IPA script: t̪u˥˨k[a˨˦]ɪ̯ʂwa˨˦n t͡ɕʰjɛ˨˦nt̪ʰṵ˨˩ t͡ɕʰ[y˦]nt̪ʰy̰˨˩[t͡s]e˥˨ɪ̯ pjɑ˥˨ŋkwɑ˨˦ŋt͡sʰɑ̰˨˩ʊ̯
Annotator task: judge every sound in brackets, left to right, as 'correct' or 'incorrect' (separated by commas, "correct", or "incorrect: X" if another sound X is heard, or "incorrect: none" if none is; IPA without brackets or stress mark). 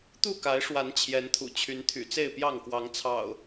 correct, incorrect: y˨˦, correct